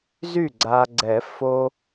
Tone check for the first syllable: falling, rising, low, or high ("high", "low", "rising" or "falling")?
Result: falling